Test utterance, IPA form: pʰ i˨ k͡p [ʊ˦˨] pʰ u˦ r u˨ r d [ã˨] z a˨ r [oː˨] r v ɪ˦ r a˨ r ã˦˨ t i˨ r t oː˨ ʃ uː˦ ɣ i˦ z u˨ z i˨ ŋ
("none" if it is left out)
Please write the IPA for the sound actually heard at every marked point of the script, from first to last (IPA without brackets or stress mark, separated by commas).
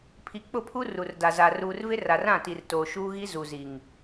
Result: ʊ˦˨, a˨, uː˨